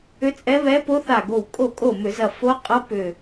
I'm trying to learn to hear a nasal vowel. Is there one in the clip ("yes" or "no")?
no